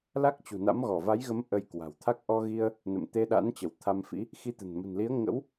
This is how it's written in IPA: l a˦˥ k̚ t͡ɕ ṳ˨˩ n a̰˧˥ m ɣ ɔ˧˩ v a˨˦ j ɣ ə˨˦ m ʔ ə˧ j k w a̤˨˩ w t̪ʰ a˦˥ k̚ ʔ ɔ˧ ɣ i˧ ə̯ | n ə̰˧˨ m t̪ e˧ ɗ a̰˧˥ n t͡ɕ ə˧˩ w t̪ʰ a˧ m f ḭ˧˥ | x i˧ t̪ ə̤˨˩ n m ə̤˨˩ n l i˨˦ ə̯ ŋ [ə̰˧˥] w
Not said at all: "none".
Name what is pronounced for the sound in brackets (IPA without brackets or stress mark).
ə̰˧˥